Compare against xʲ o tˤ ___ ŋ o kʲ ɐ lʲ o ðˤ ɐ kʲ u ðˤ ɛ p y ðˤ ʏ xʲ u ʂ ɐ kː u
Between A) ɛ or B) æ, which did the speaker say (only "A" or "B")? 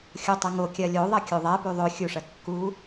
A